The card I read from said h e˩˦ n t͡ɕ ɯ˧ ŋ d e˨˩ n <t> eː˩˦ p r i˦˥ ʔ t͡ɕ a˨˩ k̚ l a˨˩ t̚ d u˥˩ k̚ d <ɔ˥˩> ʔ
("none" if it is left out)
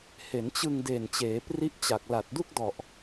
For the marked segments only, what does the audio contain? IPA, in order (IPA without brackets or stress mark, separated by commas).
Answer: t͡ɕ, ɔ˨˩